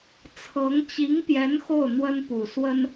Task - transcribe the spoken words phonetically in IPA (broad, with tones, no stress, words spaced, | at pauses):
t͡sʰɤ˧˥ŋ t͡ɕi˧˥ŋpjɛ˧˥n xo˥˩ʊ̯n̪wə˥npu˨˩ swə˥n